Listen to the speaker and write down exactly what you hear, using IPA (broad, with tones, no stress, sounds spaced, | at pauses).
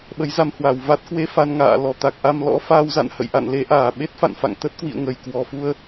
ɓ ə˨˦ j z a˧ m h w a˧˩ w v a˦˥ t̚ k w e˧ f a˧ n ŋ a̰ː˧˨ l ɔ˨˩ t̪ a˨˩ k̚ ʔ a˧ m l ɔ̰˧˥ f aː˧ w z a̰˧˨ n h ə̰˧˨ j ʔ a̰˧˨ n l e˧ ʔ aː˧˩ ɓ e˦˥ t̚ f a̰˧˨ n f a̰˧˨ ŋ t̪ ə˦˥ t̚ k w ḭ˧˨ ə̯ ŋ ə˨˩ j k w ɔ˨˩ f u˧ ə̯